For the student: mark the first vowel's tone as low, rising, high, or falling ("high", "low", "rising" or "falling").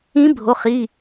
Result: rising